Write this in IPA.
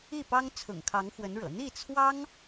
i˥˩ p ɑ˥ ŋ t͡sʰ ʊ̰˨˩ ŋ kʰ ɑ˧˥ ŋ x w ə˧˥ n ɻ ɤ̰˨˩ n̪ i˥˩ t͡sʰ w ɑ˥ ŋ

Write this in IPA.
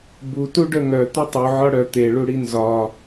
b u t u ɖ œ ŋ œ t̪ ʊ tˤ u ʕ ɒ ɽ œ t̪ e ɭ u ɽ i n z ɒ

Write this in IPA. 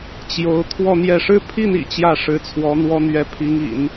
t͡ɕ j o˧˥ ʊ̯ t̪ʰ w ɔ˥˧ n̪ j ɛ˥˩ ʂ ɻ̩˥ pʰ i˥˩ n ḭ˨˩ t͡ɕ j ä˥˩ ʂ ɻ̩˧˥ t͡sʰ w ɔ˧˥ n̪ w ɔ˥ n̪ ɥ ɛ˧˥ pʰ i˧˥ ŋ ḭ˨˩˦ n

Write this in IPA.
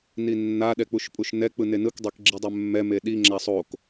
n i nː a ɗ ɛ k͡p u ʃ pʼ u ʃ n ɛ k͡p ɯ n e n ɯ k dˤ ɛ k ɡ͡ǁ i dˤ ɛ mː ɛ m e ɗ i ŋ͡ǁ a sˤ o k

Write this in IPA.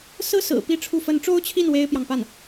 s ɹ̩˥ s ɹ̩˨˩ p i˥˧ ʈ͡ʂʰ u˥˩ f ə˧˥ n ʈ͡ʂ o˥ ʊ̯ t͡ɕʰ i˥˩ n w e˥ ɪ̯ p j ɑ˨ ŋ p a˥˩ n

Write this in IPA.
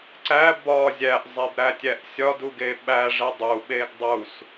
ǀ æ b ɒ zʲ æ ʔ zˤ e b ɾ æ tʲ æ ʔ sʲ ɒ d u ɡ e ɓ æ ʐ e dˤ u ɓ e ɡ dˤ u s

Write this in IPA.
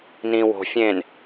n ĩː w o̤ fʲ ẽː n

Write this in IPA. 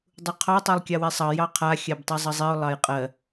dˤ u qʰ ɑ tˤ ɜ lˠ kʲ ɑ w e sˤ ɑ j ɑ qʰ a xʲ a b tˤ i zˤ ʌ zˤ i ʊ̯ lˠ ɑ j qʼ ɜ

